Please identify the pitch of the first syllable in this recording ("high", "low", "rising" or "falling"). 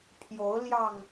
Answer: rising